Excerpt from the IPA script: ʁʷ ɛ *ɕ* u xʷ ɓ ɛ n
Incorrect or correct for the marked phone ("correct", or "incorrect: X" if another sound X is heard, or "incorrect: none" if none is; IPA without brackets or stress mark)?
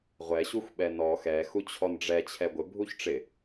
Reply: correct